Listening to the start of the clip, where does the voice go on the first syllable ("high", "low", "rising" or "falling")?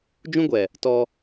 high